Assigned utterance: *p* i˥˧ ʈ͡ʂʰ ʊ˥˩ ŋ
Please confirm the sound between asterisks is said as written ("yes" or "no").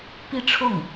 yes